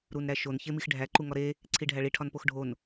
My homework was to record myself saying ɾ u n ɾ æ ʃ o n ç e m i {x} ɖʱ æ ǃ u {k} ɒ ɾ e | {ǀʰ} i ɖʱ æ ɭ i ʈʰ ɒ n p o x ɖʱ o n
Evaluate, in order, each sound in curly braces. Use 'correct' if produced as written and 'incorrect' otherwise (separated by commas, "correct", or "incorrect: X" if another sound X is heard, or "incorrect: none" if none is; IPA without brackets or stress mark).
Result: correct, incorrect: ŋ, correct